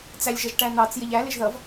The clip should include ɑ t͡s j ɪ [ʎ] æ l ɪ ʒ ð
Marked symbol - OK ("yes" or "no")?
yes